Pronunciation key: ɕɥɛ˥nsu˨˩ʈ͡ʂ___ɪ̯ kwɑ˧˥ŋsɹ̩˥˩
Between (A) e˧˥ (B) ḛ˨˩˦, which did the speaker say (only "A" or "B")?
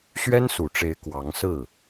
A